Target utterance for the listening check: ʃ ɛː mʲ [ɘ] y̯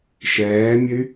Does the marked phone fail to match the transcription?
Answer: no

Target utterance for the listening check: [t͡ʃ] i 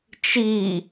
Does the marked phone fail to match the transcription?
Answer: no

